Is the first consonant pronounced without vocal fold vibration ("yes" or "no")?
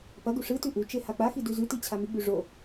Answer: yes